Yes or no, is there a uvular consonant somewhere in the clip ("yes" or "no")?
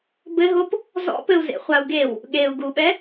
yes